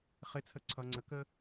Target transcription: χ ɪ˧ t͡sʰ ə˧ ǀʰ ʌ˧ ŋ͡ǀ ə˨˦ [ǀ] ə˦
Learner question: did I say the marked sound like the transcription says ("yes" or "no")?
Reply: no